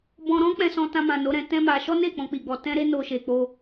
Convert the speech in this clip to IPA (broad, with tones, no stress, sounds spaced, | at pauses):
b ɔ̃˧ ɾ ɔ̃˦ k͡p ɛ̃˧ s ɔ̃˧ t ã˧ m ã˨ n o˨˦ ɾ ɛ̃˧ t ɛ̃˦ m a˧ ʃ ɔ˦ n e˦˨ k͡p ɔ̃˧ k͡p i˨ ɡ͡b ɔ˧ t ɛ̃˦ ɾ e˦ n o˧ ʃ e˨ k͡p o˧